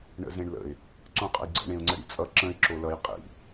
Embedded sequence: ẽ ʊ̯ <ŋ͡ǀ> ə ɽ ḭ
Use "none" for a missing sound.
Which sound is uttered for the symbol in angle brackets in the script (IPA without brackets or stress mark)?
ŋ͡ǀ